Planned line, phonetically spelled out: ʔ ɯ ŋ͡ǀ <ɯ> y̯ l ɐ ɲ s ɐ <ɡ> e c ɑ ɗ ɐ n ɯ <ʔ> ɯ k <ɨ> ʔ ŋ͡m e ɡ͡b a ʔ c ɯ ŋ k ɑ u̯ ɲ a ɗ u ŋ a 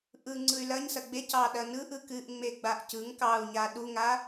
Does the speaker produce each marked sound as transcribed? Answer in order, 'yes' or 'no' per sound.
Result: yes, no, yes, yes

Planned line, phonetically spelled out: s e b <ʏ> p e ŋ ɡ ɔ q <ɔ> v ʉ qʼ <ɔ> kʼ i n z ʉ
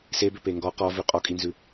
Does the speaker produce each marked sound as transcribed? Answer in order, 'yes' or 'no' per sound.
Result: yes, yes, yes

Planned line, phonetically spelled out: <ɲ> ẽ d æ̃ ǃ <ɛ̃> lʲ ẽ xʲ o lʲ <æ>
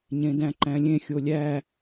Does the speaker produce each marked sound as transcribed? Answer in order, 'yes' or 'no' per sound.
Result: yes, no, yes

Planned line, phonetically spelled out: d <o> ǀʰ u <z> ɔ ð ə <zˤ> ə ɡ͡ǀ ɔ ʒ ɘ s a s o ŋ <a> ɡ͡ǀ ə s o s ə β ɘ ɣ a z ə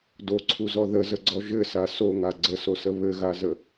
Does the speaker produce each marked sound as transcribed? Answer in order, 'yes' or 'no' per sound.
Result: yes, yes, no, yes

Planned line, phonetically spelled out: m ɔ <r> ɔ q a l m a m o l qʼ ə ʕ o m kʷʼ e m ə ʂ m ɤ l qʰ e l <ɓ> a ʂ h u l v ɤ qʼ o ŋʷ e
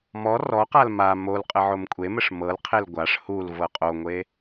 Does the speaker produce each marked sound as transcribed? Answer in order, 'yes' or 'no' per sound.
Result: yes, no

